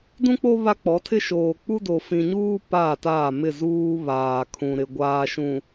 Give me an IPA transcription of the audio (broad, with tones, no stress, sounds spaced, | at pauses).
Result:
d ũ˦ k͡p o˦ β a˦ k͡p ɔ˨˦ tʰ ɪ˦ ʃ oː˨ k͡p u˦ d o˨ f ĩ˨ ɲ uː˦ p a˦˨ t aː˦˨ m ɪ˦˨ z uː˦ β aː˨ kʰ ũ˨ ɾ ɪ˨ ɡʷ aː˨ ʃ ũ˨